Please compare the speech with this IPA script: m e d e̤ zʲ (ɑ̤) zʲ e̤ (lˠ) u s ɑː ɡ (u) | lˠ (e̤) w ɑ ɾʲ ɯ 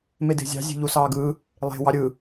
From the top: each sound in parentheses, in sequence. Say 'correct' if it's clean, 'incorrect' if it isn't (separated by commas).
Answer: correct, incorrect, incorrect, correct